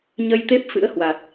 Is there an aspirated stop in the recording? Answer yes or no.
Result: no